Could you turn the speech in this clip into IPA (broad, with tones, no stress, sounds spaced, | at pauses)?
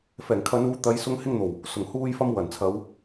f ɛː˨˩ ŋ kʰ ɐ˨˧ n uː˨˧ t̪ ɐ˨˧ j s ʊ˨˧ ŋ h ɪ˧ ŋ n̪ o˨˩ w | s ʊ˨˩ ŋ h uː˧ j f ɐ˧ m w ɐ˨˩ n t͡sʰ ɐ˨˧ w